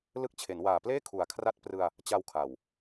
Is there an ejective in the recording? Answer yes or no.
no